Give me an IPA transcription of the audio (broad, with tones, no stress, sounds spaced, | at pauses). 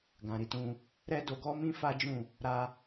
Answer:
ɡ ã˨ ɾ i˧ t ũ˧ | ɾ ɛ˦ d o˧ ɡ ɔ˦ m ĩ˦ f a˦ d͡ʒ ũ˦˨ | ɾ a˧